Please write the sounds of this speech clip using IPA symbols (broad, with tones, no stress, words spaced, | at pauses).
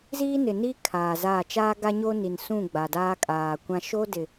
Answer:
ziː˦nɪ˨niː˦ kʰaː˨zaː˦˨ t͡ʃaː˦ɡa˦ɲo˦ni˨n sũ˦˨ ɡ͡ba˨daː˦ kʼaː˨kʷã˦ ʃo˦dɪ˨